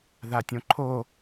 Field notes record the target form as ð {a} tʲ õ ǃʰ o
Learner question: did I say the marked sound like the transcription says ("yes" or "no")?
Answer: yes